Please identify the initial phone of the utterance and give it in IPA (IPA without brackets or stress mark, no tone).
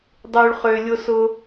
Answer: dˤ